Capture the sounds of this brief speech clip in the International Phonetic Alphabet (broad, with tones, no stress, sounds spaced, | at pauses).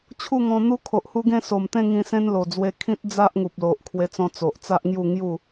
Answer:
t͡ɕʰ u˥˧ ŋ ɔ̃˧ n̪ u˦ kʰ o˨ ʔ h u˦ ɡ ẽ˥˧ s o˨˩ m t̪ ẽ˥˧ ŋ ĩ˧ s ẽ˦ n l o˨˩ d͡z w e˧ kʰ ĩ˦ t̚ d͡z a˦ ʔ ŋ u˨ p̚ l o˨ ʔ kʰ w e˧ t͡s ɔ̃˧ t͡s o˨ ʔ t͡s a˦ ʔ ŋ j u˥˧ ŋ j u˥˧